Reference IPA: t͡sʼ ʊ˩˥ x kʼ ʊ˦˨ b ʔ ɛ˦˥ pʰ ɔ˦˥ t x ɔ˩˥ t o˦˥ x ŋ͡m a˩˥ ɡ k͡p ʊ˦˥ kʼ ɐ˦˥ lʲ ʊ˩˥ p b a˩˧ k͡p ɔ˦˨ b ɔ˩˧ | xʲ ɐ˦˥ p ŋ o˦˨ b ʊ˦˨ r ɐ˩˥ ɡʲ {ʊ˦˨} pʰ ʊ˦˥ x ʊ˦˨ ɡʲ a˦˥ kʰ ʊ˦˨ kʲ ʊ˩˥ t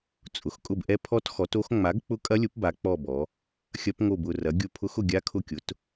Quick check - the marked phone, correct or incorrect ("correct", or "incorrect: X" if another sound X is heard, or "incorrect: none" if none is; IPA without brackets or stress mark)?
correct